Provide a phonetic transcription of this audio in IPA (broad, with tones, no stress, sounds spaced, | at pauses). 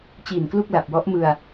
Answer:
t͡ɕ iː˨˩ n k l u˥˩ k̚ l a˨˩ p̚ w ɔ˦˥ ʔ m ɯ˧ a̯